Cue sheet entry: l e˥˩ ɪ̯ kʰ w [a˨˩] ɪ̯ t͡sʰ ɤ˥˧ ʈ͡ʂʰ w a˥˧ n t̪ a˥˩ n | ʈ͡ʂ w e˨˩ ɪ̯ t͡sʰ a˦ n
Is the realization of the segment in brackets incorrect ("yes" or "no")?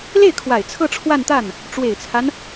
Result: no